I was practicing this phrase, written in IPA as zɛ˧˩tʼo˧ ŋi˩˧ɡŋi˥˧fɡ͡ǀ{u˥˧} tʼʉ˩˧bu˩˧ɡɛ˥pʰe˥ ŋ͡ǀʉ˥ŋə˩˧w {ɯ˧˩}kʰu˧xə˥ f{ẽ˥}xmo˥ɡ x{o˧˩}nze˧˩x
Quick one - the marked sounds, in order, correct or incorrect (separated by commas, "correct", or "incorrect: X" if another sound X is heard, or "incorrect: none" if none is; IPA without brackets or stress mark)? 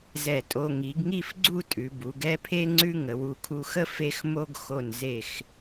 correct, incorrect: u˧˩, incorrect: e˥, correct